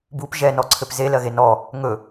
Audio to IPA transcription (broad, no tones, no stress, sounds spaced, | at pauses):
b u p ʒ ɛ n ɔ ǀʰ ɘ p z e l ɜ ɣ e n ɔ | ŋ ɵ